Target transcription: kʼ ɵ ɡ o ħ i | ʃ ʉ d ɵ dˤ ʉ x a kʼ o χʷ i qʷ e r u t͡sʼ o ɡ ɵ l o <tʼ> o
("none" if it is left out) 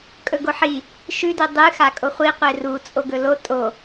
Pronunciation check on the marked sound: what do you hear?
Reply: tʼ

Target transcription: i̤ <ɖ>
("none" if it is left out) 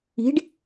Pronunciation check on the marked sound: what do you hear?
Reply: ɖ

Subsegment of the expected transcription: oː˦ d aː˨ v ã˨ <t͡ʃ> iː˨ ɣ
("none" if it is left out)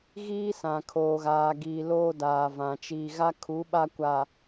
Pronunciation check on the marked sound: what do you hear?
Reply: t͡ʃ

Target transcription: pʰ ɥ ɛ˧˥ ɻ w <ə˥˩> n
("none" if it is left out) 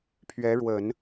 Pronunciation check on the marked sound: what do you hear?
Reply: ə˨˩˦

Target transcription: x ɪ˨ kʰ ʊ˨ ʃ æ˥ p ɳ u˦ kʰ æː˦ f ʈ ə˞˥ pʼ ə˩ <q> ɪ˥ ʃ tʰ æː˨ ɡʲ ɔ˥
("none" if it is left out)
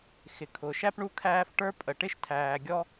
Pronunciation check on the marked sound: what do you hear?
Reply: ʈ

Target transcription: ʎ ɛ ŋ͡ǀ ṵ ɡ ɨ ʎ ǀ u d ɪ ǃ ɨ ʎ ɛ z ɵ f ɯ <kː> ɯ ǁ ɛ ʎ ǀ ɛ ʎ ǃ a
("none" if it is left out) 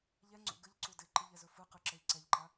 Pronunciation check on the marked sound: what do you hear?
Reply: q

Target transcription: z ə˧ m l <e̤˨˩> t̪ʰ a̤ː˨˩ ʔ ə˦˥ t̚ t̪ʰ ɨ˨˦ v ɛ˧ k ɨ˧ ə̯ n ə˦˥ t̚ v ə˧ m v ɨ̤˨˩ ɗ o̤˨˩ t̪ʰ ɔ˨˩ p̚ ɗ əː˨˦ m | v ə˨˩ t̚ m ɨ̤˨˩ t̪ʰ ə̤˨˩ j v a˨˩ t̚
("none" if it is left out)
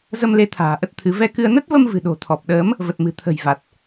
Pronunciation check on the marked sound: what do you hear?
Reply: e˨˦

